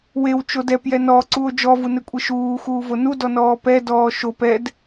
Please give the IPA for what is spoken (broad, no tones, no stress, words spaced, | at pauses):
wewt͡ʃo dɛpjɛ nɔǀuo̯ d͡ʒɔvunekʷʼe ʃuːxuːvo nudɔnɔː pɛdɔː ʃop ɛd